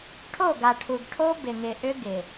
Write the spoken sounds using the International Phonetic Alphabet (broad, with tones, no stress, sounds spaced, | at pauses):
ʈʰ o˦˨ ɡ a˨ ʈʰ u˨ ɡ ʈʰ o˦ b ɪ˨ ŋ ɪ˨ ʔ ʏ˦ ɡ ɪ˨